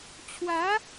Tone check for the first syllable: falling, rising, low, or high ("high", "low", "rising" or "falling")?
rising